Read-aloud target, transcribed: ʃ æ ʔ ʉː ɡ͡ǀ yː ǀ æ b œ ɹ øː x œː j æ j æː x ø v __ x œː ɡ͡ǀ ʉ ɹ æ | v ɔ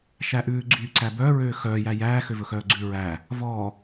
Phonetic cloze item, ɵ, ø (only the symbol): ɵ